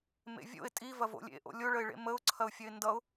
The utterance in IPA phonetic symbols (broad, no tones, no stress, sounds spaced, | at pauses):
m ḛ vʲ o̰ ɪ̯ tʼ i v ɐ v o̰ lʲ ḛ ʔ o̰ lʲ o ɭ ə ɪ̯ ɭ ḛ m ə ʊ̯ ǀʰ ɐ ʊ̯ fʲ ɐ ɪ̯ n d ʌ ʊ̯